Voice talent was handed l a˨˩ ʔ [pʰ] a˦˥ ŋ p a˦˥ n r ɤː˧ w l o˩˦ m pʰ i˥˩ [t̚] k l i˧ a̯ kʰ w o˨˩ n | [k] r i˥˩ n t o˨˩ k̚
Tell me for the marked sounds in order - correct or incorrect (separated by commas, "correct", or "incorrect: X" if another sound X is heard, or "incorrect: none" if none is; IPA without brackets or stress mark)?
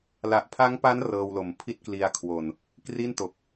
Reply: correct, correct, correct